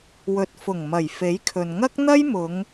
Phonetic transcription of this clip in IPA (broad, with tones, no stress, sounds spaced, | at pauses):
w ɵ˨ t̚ f ʊ˨˩ ŋ m ɐ˨˩ j f e˨˥ j kʰ ɵ˨ n ŋ ɐ˥ k̚ n̪ ɐ˥ j m ʊ˨˧ ŋ